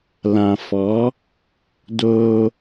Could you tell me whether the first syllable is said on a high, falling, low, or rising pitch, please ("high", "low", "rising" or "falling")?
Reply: low